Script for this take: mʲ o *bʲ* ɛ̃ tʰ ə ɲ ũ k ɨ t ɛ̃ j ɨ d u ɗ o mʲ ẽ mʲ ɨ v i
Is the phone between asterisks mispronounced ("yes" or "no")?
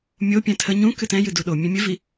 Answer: yes